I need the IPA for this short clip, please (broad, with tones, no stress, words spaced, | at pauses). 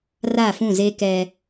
ra˦˨fũ˦˨ze˦ kɛ˦